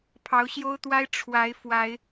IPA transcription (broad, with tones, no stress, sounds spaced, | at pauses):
pʰ ɑ˨˦ ʊ̯ ɕ j o˦ ʊ̯ t̪ w a˦ ɪ̯ ʈ͡ʂʰ w a˨˦ ɪ̯ f w a˨˦ ɪ̯